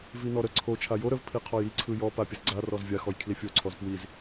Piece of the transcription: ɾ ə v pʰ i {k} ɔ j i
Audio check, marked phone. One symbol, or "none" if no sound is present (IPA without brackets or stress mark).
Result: qʰ